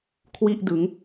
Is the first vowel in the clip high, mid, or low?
high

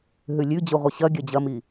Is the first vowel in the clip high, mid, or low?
high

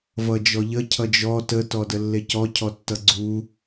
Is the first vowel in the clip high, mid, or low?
mid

